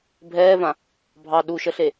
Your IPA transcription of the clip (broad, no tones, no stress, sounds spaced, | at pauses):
bʱ ɛː v ã | bʱ ɑ ɗ u ʃ ə ɬ e